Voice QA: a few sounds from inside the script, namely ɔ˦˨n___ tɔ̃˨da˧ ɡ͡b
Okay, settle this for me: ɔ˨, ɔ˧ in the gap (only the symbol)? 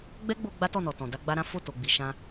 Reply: ɔ˨